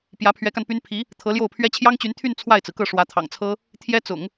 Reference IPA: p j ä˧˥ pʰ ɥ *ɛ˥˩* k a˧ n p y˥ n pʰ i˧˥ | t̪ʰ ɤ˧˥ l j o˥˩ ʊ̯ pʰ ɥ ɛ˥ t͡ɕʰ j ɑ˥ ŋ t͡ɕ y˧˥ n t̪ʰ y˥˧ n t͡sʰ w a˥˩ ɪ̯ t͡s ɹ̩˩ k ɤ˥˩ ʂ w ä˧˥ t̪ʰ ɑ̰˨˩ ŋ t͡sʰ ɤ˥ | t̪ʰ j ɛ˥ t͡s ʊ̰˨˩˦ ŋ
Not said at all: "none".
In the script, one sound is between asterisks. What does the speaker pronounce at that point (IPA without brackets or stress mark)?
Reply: ɛ˧˥